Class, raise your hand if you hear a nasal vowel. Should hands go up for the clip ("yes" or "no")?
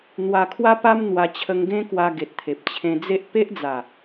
yes